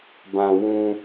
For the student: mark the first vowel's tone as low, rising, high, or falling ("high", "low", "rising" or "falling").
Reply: low